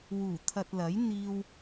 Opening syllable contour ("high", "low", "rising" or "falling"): low